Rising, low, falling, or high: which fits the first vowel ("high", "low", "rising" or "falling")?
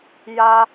high